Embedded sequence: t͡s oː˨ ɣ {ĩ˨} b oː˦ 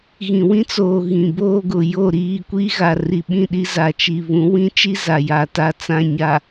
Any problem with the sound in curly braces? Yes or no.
no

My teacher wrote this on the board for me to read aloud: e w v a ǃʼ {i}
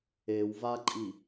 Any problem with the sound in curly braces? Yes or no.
no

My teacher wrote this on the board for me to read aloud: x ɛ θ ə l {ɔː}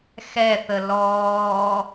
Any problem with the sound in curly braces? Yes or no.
no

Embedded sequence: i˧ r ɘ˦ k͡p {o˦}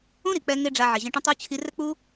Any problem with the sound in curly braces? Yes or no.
yes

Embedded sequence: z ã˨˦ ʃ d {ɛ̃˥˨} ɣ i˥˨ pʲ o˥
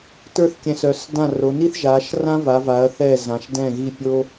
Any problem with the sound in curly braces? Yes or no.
no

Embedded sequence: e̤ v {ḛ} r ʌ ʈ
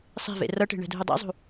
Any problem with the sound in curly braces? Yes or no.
no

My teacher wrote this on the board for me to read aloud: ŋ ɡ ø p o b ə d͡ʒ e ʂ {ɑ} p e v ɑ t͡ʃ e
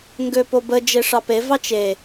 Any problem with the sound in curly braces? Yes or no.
no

